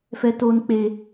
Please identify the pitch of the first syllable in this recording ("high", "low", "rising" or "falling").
low